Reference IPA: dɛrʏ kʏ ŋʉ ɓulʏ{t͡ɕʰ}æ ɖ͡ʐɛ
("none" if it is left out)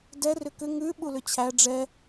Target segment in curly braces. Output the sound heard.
t͡ɕʰ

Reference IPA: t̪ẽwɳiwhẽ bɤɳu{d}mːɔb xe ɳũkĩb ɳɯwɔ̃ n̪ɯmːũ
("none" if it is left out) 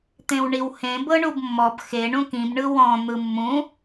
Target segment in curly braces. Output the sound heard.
b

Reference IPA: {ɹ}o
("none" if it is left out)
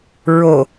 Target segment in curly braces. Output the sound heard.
ɹ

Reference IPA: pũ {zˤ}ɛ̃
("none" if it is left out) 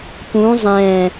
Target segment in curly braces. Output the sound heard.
zˤ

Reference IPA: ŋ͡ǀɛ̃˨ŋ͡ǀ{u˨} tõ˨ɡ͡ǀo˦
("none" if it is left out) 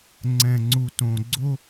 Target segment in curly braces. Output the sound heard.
u˨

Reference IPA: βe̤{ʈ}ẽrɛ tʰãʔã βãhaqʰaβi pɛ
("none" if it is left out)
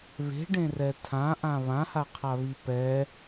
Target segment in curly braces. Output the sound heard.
ɖ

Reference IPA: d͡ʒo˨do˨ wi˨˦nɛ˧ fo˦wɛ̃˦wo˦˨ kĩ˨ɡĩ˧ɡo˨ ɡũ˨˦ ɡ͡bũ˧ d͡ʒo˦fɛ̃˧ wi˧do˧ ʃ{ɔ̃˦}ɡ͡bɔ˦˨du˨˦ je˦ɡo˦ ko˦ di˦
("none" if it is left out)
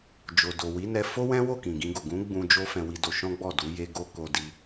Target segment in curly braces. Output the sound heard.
ɔ̃˦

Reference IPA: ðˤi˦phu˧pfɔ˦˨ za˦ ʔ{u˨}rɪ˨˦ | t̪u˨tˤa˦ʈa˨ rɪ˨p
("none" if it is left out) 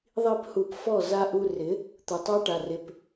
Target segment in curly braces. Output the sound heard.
u˧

